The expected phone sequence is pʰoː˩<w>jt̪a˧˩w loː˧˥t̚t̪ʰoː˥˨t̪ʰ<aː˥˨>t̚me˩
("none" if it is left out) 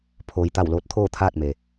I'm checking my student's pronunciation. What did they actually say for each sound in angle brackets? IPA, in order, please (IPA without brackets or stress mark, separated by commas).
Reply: none, aː˥˨